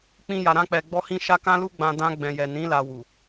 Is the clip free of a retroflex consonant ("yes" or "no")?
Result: yes